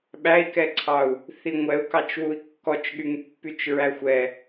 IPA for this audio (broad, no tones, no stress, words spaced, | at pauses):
ɓæi̯kɛǀʰɑu̯ | θiŋʷɛu̯ kɑt͡ʃwui̯kːɔt͡ʃɠyŋ pːyt͡ʃɹæxʷɛ